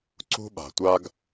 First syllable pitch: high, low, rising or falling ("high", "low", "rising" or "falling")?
high